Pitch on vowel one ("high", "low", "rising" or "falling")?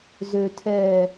low